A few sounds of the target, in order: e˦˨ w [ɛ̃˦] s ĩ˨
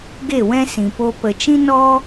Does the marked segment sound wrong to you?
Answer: no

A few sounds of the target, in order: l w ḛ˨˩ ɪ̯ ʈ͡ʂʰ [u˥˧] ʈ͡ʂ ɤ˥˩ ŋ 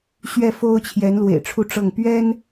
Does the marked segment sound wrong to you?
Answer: no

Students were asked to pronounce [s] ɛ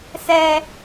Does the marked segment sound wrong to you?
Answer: no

